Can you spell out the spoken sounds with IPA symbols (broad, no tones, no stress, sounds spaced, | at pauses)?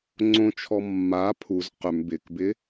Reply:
ŋ͡ǀ õ t͡ʃʰ ɔ mː a pʰ u z q ʏ m b ɪ k b ɪ